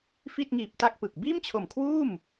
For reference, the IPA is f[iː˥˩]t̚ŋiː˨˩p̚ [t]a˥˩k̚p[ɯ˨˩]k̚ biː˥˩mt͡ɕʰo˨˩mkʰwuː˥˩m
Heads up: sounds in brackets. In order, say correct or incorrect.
incorrect: i˥˩, correct, correct

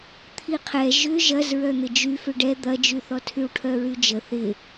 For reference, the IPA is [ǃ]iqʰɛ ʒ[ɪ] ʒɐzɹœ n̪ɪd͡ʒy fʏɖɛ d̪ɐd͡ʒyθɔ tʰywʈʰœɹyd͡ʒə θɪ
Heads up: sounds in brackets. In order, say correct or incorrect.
incorrect: t̪ʰ, incorrect: ʏ

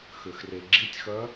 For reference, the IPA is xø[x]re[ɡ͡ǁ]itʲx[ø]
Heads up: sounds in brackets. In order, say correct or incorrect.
correct, correct, incorrect: œ

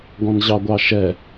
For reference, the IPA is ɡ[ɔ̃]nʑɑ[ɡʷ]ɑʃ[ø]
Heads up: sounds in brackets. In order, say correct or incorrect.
correct, correct, incorrect: ɛ

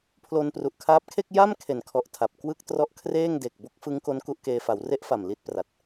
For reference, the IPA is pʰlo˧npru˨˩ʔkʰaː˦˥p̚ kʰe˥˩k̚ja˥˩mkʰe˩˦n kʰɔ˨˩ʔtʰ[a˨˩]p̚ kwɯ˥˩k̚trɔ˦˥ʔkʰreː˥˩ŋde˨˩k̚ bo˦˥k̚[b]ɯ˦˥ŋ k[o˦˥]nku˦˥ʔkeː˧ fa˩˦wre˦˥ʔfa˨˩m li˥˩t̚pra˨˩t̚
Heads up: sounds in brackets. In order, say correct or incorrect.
correct, incorrect: f, correct

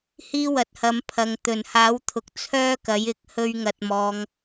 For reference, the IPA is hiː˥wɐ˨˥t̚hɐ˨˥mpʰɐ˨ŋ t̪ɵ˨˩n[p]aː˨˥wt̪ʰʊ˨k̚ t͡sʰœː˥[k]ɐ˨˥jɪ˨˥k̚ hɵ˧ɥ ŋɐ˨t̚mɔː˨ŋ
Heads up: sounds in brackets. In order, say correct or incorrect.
incorrect: h, correct

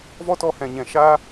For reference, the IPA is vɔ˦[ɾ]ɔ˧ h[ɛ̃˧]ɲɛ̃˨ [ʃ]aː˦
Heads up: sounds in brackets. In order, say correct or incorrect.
incorrect: t, incorrect: ɛ̃˨, correct

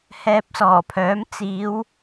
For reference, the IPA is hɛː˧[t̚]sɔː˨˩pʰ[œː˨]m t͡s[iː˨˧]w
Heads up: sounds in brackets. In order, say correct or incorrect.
incorrect: p̚, incorrect: œː˨˥, correct

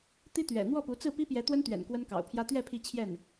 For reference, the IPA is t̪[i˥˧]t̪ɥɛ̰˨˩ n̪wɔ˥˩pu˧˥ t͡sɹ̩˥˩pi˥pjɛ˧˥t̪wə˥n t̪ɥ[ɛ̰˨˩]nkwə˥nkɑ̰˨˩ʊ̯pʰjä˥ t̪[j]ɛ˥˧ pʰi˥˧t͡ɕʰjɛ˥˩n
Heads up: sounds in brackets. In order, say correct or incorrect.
incorrect: i˥, correct, incorrect: ɥ

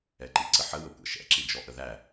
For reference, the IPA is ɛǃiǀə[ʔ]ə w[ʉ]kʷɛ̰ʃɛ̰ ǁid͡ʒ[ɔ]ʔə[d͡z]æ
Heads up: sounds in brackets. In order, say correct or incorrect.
incorrect: ħ, incorrect: ə, correct, incorrect: ð

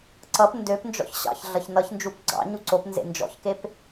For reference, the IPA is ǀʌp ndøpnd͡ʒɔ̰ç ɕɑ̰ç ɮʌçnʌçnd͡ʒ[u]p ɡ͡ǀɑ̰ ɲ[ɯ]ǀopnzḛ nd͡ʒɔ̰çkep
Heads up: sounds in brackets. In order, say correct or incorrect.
correct, incorrect: u

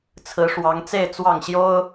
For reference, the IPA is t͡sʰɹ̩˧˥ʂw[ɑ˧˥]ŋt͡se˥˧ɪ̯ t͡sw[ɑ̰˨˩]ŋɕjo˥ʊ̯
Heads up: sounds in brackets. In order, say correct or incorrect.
correct, incorrect: ɑ˥˩

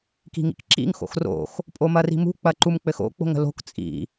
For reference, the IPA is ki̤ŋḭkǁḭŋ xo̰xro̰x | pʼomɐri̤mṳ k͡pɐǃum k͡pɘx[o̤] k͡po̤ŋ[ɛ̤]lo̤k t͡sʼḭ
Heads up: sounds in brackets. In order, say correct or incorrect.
incorrect: o̰, incorrect: ə̤

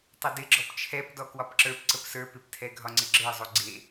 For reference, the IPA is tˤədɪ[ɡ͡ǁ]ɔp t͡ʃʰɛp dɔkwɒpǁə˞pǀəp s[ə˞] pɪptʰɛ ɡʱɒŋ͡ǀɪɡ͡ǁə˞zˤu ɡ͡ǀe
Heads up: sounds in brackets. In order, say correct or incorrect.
correct, correct

